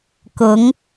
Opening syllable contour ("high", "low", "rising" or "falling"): rising